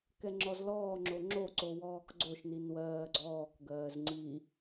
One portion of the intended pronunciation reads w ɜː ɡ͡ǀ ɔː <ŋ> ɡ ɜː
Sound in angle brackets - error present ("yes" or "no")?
yes